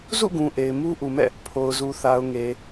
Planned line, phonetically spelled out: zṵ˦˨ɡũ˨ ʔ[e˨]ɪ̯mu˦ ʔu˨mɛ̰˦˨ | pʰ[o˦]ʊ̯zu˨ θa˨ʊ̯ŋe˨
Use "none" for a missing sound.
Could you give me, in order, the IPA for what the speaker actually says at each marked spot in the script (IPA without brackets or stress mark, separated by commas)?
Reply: e˨, o˨